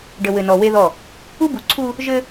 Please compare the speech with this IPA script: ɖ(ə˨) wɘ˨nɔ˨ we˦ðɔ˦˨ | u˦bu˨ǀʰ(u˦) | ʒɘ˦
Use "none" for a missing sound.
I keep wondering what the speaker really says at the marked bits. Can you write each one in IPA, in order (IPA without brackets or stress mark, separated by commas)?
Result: ə˨, u˦